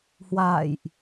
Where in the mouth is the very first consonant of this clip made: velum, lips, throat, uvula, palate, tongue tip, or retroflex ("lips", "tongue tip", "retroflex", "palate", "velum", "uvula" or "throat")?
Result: throat